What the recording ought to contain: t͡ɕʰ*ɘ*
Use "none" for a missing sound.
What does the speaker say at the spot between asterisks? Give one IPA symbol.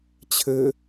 ɘ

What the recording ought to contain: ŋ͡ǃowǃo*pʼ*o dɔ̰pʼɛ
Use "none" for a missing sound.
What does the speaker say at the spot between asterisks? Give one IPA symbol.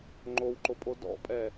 pʼ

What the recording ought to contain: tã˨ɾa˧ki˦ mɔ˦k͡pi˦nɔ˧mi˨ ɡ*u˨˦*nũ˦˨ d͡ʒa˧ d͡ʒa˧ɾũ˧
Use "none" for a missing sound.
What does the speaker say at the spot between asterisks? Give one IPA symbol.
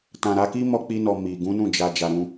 ũ˨˦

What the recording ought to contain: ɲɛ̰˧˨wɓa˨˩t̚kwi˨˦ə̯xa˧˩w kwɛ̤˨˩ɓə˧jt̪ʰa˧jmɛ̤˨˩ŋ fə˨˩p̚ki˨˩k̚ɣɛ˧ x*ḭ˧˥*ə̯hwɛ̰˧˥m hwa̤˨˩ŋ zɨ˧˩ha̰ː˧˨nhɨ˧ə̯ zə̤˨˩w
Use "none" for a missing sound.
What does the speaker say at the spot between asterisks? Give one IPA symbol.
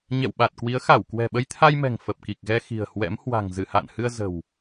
i̤˨˩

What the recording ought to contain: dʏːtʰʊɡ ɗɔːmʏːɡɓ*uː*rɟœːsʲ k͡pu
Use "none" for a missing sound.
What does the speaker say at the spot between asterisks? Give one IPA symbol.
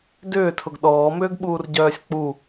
uː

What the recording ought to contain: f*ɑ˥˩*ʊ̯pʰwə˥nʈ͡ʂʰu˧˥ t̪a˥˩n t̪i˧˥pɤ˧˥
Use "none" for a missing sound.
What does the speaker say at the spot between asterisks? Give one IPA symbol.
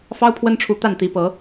ɑ˥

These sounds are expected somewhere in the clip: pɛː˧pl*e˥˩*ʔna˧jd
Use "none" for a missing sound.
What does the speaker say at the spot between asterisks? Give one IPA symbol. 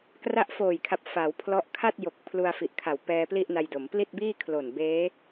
i˥˩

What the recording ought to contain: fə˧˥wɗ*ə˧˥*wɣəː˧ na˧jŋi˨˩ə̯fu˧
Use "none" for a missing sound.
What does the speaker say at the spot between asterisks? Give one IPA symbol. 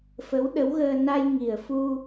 ə˧˥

